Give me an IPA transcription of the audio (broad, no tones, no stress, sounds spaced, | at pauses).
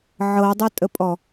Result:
ʕ ɤ dˤ ʊ tʼ ə pʼ ɔ